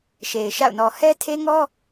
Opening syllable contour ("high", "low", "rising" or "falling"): low